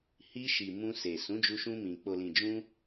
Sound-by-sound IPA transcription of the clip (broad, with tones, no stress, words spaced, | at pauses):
hi˧ʃi˨ mũ˧se˨ sũ˨˦d͡ʒu˧ʃũ˧mĩ˨ k͡po˨lĩ˨d͡ʒũ˧